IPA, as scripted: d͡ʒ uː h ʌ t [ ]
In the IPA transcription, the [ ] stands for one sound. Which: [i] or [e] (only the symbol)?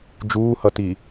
i